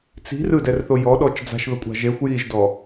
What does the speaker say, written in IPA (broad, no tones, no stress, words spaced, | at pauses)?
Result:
t͡si̤r ɯdɛrθo jɔɗɔt͡ʃ d͡za̤ʃðɤkʷʼa̤ ʒexʷ jiʒdɔ